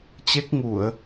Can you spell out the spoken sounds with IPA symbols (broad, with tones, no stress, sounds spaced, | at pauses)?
t͡ɕ e˦˥ k̚ ŋ u˧˩˨ ə̯